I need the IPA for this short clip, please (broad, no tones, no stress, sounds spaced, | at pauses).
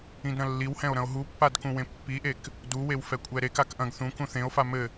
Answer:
ĩ d ɾ ɐ̃ lː i w h ɛ̃ o̯ ɾ ɐ̃ o̯ ɦ u pː a d k ũ w ẽ pː i ʔ e k | d u w e w f ɛ kʷʼ ɛ ɾ e k a k ʔ ɐ̃ ɡ θ ũ k ũ θ ẽ o̯ f a m ɘ